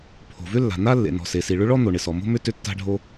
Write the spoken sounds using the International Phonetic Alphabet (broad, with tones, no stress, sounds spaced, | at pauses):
pʰ o̤˩ v ʏ˥ lː a̤˩ n a˥ lː ḛ˩ n ɔ̤˩ s e˩ s i˩ ɭ ʏ˥ ɭ ɔ˥ n̪ o˩ ɳ ɪ˩ s ɔ˩ m o̤˥ m ʏ˥ t ʏ˥ tː a̤˥ ɖʱ o˥